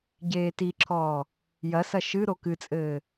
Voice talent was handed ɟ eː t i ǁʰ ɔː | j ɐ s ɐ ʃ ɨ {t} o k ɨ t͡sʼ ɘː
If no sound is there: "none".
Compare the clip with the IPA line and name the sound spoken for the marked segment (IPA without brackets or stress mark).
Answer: ɾ